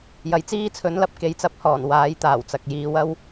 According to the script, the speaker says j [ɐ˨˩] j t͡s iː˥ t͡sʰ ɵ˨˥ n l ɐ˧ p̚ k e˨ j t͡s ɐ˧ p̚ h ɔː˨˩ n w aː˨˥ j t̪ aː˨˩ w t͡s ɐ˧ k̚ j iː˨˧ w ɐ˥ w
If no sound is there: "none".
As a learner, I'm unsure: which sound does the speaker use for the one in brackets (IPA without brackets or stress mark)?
ɐ˨